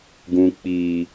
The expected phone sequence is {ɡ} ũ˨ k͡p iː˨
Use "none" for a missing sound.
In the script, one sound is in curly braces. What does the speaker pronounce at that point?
ɡ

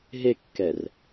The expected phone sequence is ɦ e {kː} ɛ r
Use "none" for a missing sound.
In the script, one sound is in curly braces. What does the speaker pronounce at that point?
kː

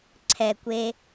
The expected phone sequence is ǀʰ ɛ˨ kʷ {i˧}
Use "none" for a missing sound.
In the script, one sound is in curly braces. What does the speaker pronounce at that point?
e˧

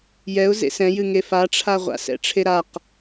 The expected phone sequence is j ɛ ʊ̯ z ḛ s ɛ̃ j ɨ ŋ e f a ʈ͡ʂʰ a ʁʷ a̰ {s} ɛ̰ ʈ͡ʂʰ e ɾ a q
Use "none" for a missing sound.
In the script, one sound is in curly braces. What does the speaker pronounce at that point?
s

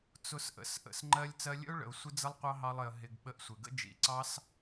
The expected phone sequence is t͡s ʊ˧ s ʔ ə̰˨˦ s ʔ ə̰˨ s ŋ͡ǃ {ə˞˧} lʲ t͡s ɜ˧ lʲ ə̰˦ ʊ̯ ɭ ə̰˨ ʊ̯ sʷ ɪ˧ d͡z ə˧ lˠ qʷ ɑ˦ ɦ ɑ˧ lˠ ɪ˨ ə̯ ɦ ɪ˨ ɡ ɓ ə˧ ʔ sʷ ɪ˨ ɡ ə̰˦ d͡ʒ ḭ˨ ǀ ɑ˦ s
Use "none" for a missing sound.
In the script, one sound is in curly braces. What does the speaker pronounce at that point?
ɜ˧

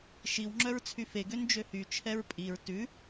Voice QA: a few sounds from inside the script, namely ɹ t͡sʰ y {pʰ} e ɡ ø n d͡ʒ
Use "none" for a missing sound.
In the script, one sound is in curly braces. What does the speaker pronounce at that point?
f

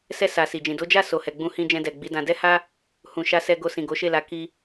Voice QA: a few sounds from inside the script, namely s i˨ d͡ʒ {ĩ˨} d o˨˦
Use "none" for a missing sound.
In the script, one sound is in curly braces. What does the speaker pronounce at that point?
ĩ˨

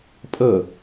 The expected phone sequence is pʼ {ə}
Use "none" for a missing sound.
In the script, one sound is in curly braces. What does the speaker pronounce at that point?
ə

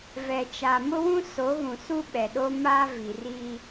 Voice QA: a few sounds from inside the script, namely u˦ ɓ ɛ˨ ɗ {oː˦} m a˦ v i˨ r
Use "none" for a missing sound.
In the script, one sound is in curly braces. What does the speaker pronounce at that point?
o˦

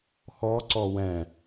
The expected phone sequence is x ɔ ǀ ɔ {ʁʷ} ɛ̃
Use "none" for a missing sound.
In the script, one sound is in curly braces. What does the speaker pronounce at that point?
w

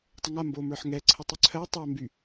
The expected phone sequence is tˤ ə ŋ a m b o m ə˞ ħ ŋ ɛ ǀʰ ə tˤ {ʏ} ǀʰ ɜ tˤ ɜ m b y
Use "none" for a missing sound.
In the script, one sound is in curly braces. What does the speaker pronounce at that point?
ʏ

